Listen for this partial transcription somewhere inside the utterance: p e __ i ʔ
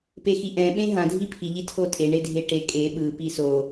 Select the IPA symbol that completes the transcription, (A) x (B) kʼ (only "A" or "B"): A